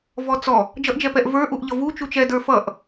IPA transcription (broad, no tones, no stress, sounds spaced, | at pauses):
v ɔ t͡s ɔ | d͡ʒ ʌ ʔ d͡ʒ ɛ p ɛ ʔ v ə˞ ʔ u ʔ ʎ ʌ v u t͡ʃ u t͡ʃ ɛ d ə˞ f ʌ ʔ